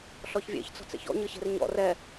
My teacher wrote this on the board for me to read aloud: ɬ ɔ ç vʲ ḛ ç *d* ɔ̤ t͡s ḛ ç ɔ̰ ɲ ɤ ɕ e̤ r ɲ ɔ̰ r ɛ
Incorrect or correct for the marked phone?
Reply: incorrect: t͡s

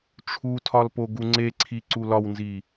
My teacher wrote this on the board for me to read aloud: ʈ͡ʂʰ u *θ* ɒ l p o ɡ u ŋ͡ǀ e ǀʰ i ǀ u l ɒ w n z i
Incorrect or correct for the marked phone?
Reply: incorrect: tʰ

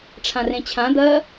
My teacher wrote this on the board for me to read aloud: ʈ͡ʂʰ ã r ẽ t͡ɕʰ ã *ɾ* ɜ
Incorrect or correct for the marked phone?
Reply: incorrect: d̪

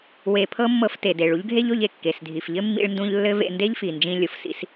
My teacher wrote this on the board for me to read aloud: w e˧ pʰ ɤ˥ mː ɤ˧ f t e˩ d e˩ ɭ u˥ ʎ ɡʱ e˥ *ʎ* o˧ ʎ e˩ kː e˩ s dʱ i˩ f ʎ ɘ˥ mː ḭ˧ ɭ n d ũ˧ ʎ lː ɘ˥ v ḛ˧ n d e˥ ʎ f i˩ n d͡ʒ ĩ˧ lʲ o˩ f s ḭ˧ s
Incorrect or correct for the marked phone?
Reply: correct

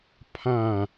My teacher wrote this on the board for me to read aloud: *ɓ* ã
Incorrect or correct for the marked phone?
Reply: incorrect: pʰ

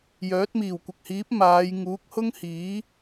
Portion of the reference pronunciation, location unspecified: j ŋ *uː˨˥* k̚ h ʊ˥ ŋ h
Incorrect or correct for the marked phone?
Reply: correct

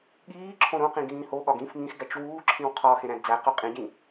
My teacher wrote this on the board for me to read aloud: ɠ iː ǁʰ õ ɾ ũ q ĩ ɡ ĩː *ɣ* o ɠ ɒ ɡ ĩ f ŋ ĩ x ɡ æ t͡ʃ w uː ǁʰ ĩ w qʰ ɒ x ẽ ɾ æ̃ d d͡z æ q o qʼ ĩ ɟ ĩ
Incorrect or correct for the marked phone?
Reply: incorrect: h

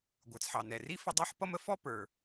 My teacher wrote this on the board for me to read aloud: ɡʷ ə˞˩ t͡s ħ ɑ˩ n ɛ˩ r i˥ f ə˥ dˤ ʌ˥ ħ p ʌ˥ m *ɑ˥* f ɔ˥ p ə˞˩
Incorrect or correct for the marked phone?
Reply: incorrect: ə˥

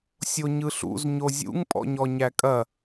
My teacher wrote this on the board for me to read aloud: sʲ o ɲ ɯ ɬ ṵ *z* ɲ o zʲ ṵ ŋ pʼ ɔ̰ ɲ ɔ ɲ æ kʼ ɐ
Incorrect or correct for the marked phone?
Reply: correct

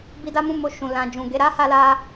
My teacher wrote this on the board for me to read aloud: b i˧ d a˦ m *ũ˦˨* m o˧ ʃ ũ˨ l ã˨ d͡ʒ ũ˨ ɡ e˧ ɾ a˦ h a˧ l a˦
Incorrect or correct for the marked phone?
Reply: correct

